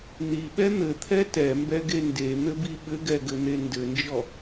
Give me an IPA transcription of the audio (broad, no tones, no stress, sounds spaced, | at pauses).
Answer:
n̪ i ɓ ɛ n̪ ɘ t̪ʰ ɛ t ɛ m b ɛ ɡ e n d e n̪ ɘ b i ɓ ɘ ɡ ɛ ɡ ɘ n̪ e n d ɘ n d͡ʒ ɔ